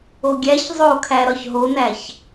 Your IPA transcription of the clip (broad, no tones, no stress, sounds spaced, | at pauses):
o ɡʲ æ ç zˤ o kʰ æ ɾ ɒ ç ɦ o n æ ç